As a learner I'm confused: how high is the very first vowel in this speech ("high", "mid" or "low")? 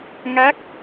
low